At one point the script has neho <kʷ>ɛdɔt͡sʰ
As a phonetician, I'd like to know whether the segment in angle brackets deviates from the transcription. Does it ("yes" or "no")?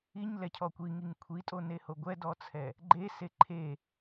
yes